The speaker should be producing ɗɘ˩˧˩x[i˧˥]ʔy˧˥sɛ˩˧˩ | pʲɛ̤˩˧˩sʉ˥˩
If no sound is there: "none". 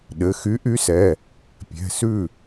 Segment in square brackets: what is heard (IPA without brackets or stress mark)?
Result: y˧˥